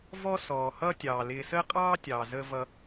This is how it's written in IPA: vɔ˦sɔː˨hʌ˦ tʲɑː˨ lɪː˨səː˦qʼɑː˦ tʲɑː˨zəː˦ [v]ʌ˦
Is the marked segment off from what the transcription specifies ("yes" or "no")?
no